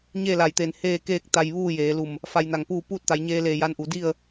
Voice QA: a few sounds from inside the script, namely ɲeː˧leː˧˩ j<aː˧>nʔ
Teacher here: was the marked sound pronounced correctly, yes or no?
no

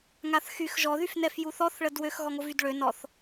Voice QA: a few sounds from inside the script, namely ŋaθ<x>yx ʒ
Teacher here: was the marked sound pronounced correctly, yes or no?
yes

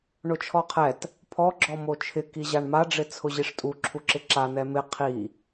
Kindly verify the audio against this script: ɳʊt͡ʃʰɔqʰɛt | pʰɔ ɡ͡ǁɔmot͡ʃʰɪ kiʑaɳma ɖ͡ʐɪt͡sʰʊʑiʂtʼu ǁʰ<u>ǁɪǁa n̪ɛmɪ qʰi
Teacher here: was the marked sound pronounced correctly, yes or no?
yes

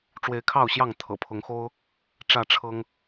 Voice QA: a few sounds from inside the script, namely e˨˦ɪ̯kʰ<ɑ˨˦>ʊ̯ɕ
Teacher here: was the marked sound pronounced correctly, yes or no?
no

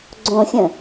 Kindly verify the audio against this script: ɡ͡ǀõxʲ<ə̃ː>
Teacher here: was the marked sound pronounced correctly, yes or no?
no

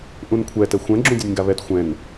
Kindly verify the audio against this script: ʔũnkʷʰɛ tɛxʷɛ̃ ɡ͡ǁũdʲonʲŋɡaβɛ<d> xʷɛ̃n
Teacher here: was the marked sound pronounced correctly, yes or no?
no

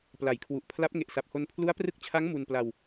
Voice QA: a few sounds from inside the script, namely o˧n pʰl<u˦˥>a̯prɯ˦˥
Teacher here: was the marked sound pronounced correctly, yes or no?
yes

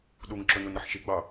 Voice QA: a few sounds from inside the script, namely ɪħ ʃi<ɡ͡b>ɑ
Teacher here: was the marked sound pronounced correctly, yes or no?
yes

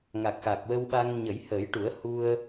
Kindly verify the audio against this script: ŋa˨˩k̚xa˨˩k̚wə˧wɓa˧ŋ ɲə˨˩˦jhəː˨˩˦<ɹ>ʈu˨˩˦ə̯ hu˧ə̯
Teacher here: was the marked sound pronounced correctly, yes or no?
no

